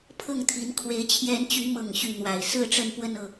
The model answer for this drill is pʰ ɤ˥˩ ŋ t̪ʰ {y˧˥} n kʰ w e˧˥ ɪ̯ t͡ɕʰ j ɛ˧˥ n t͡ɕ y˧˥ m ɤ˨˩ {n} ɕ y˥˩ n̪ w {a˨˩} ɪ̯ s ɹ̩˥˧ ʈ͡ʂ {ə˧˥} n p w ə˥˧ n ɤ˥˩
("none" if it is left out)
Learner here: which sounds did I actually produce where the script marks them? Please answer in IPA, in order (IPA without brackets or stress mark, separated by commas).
i˧˥, ŋ, a˨˩, ə˥˧